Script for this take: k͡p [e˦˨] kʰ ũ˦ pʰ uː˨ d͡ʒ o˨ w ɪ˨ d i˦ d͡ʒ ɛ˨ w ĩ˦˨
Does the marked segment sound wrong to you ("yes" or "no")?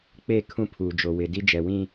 no